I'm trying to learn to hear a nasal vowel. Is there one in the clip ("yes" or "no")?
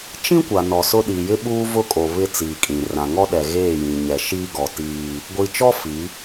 yes